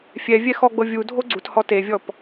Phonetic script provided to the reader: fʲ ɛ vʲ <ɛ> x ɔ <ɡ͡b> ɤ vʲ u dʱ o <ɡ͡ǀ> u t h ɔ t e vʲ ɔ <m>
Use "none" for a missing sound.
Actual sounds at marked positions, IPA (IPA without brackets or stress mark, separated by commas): ɛ, ɡ͡b, ɡ͡ǀ, p